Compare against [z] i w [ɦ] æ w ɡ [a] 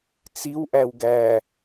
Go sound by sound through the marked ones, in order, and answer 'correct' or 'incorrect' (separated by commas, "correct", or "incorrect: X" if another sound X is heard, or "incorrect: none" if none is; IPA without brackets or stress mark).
incorrect: t͡s, incorrect: ʔ, incorrect: æ